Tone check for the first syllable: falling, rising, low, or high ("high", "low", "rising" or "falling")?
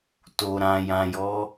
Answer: low